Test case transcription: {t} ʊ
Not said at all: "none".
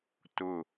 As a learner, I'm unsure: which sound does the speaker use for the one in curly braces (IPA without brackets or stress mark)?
t